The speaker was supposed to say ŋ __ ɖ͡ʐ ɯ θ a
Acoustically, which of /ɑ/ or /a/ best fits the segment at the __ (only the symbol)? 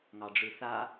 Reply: ɑ